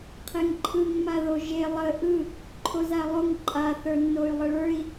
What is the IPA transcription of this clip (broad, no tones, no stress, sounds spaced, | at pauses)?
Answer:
qʰ e ŋ ǃʰ ɯ ŋ m a ð o ʒ e lˠ ə ʔ ɯ | ǃʰ o z a lˠ o ŋ ǃʼ a θ ə˞ nː o y̯ lˠ ə ɭ ə˞ i̯